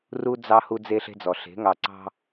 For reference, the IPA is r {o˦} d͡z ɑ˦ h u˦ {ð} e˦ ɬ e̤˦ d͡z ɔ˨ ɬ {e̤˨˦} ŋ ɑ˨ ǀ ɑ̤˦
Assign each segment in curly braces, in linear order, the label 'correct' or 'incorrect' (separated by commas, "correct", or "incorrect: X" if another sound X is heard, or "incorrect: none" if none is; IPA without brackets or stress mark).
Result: incorrect: u˦, incorrect: d͡z, correct